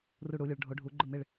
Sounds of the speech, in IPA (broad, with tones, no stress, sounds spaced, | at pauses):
r u˧˩ ɽ u˩˧ lʲ ʊ˩˧ ɭ ɖʱ o˩˧ ɖʱ u˩˧ ɡ͡ǃ ʊ˧˩ m ɪ˧˩ ɭ